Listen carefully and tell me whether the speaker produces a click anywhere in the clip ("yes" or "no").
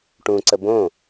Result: yes